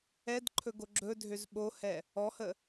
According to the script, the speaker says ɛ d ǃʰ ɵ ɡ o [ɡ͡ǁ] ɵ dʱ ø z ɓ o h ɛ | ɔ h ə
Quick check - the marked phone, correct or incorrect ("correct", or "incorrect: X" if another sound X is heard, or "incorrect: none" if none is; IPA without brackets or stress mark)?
correct